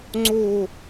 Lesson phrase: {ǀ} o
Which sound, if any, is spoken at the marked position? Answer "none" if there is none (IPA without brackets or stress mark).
ŋ͡ǀ